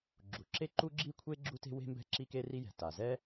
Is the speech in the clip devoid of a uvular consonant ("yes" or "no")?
yes